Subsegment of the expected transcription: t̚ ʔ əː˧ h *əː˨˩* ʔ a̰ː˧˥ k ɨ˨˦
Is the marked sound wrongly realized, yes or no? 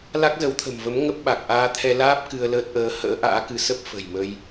yes